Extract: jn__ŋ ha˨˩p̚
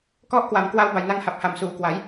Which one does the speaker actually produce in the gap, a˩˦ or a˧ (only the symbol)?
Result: a˧